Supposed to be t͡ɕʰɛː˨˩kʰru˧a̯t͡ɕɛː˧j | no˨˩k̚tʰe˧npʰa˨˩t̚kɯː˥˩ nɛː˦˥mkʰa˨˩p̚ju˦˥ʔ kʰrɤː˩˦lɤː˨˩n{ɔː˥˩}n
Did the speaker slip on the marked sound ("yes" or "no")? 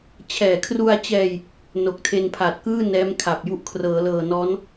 yes